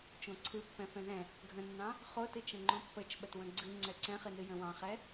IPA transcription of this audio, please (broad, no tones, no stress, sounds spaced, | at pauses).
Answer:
t͡ʃ õ ǀʰ ɨ pː ɛ̃ f ɛ̃ ð ɛ̃ | ɡʱ ə̃ nː ɑ̃ | χ o t ɨ t͡ʃ ə̃ ŋ͡ǃ õ pː ə t͡ʃ ɓ ə t w ə̃ ɡ͡ǀ ɨ ŋ͡ǀ ɛ ǀ ɛ̃ χ ɨ n ɨ j ə̃ w ɑ̃ χ ɛ